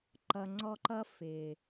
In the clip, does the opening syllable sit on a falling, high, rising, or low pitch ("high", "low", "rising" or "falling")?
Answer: low